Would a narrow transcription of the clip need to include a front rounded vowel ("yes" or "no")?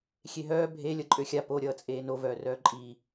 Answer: yes